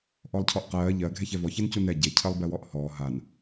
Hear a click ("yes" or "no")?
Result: no